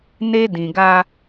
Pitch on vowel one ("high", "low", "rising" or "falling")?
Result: high